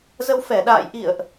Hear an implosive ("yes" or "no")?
yes